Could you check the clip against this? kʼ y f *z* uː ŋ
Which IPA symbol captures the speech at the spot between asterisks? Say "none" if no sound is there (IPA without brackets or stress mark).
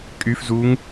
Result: z